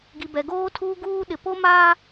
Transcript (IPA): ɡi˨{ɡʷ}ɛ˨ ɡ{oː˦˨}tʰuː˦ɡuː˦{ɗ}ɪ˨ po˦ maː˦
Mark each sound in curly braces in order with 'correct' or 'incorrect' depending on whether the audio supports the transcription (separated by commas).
incorrect, incorrect, correct